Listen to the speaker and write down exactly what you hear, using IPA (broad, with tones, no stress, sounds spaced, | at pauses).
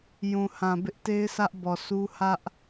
j ũ˨ h ã˨ b ɪ˦ ʔ t e˦ ɪ̯ s ä˦ ʔ b ɔ˨ s u˦ h ä˦ ʔ